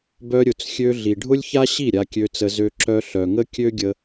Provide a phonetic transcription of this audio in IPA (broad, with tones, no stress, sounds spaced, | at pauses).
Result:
b œ˧ ɾʲ ʊ˨ t͡s xʲ ø˧ ɮ i˨ ɖʱ ʊ˦ lʲ ç a˦ ɕ i˦˨ ɾʲ a˧ kʲ ø˧ t͡s ə˧ z ø˧ ǁ œ˧ ɬ œ˨ ŋ ə˦ kʲ ø˦ ɡʲ ə˧